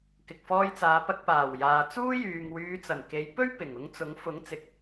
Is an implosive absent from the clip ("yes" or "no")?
yes